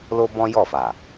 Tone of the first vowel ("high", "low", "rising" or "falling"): high